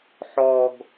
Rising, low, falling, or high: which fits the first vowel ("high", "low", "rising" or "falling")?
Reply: low